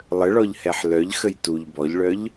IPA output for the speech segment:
lˠəɭɔʎhɛħ lœʎxəj tuʎ bɔʎɭœʎ

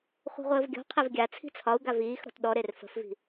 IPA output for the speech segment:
χʷe̤ʁʷəːvɡʲɔ̤qʰev ɡʲa t͡sʰi̤t͡sʰɒu̯ ɡaviːxɾɔ̤t ɗɔɾer fə̤fvi̤

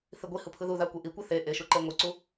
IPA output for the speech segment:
θiɡʷihɯ pʰɯðuða kʷeʔikʷi θe ʔeʃu ǃeŋʷɯǀu

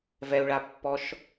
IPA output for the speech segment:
vɛu̯ɭapːɔʃ

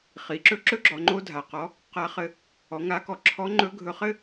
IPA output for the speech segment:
χi˩˧ǁɵ˥ ǁɵ˥ɡ͡ǁɔ˩˧ ŋ͡ǃo˥dʱa˩qɔ˧˥ | qa˧˥ χɘ˧ | ɔ˩˧ŋa˧˥kɔ˩˧ ǁʰɔ˧˥ ŋ͡ǃɵ˧˥ɡʱɵ˧χɘ˥

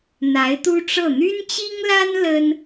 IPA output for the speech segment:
n̪a˧˥ɪ̯t̪u˥ʈ͡ʂɤ˥˩ n̪y˥nt͡ɕi˥ŋla˥n lə˥n

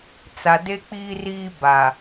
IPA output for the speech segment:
t͡sa˨de˦k͡piː˦riː˦ ba˨

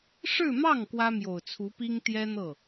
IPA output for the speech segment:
ʂɻ̩˥˧mɑ˥˩ŋ kwä˥mjo˨˩ʊ̯t͡sʰu˧˥pi˥ŋ t̪jɛ˥n̪ɤ˥˩

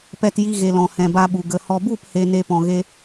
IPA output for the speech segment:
pɛ˧tji˧ɣe˨ lɔ̃˨hɛ̃˨ba˧ɓu˨ ɡə˨ hɔ˨bu˦˨phe˨ ne˦pɔ̃˧ɣe˦

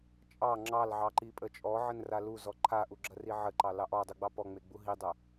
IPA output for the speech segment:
t͡ʃʼɑ ŋ͡ǁɑlʕɑǃipʼə t͡ʃʼɔʕənra luzɔ ǃʰaʔuɡ͡ǁɐri ʕəǃɑlɑʔ ɔdˤuɡ͡bɑ pɔŋ͡meɡ͡bu ɦidˤɐ

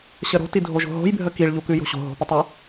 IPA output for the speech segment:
ɕəɾo̤ tidʱoʒo̤ɦo̤j bʱəkiɭ ʎukʉjo̤ɕo̤ ɦo̤pətˤə

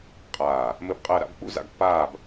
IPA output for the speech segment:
qʼaː˧˩ | mɘ˥˧bqʼəː˥˧ɾa̰˥b k͡pṵ˥za̰˧ɡpːaː˥˧b

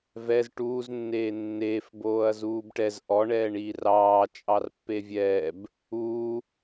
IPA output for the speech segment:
vɛz ʈuːznːeː nːeːfboːɐ̯ zuːbʈɛz ʔɔɳɛːɳiː rɑːt͡ʃʼɑr pːevʲɛːb | uː

